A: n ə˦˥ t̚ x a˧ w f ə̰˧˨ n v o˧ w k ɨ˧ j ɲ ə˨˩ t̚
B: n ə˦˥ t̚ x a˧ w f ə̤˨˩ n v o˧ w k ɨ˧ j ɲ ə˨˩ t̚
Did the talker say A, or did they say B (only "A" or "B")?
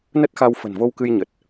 B